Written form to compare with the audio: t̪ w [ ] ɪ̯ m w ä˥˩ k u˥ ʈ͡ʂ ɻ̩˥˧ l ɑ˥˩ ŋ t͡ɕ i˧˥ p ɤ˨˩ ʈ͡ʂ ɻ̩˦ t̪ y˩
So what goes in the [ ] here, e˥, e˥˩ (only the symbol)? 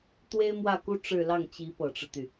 e˥